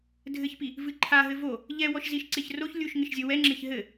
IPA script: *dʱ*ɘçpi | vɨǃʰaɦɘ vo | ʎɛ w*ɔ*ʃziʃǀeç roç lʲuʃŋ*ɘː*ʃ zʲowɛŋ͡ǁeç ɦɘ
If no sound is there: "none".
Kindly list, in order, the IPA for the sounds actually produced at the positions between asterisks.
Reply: dʱ, ɔ, ɘ

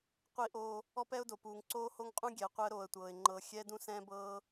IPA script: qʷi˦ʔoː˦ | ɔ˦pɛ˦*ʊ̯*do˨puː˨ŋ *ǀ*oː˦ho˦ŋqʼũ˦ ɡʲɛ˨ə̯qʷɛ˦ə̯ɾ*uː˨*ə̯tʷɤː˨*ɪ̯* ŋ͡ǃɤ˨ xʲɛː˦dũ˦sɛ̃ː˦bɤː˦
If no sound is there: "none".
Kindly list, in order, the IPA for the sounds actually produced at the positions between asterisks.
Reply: ʊ̯, ǀ, oː˨, ɪ̯

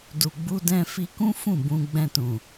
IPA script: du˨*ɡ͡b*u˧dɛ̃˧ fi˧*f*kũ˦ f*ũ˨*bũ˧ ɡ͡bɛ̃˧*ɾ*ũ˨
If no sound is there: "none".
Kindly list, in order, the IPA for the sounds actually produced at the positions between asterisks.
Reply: ɡ͡b, none, ũ˦˨, t

